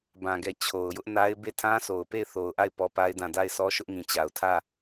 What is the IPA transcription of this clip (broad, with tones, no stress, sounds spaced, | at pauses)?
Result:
b ã˨ ɡ ɛ˨ t͡ɕʰ o˨ ʊ̯ j ʊ˦ ʔ n a˦ ɪ̯ b e˦˨ tʰ ã˦ sʰ o˨ ʊ̯ p e˦˨ ɪ̯ θ o˨ ʊ̯ ʔ a˦˨ ɪ̯ p ɔ˦ p a˦ ɪ̯ d ã˦˨ d a˦˨ ɪ̯ sʰ ɔ˦ ʃ ʊ˦ ʔ ŋ ĩ˨ t͡ɕ a˨ ʊ̯ tʰ ä˦˨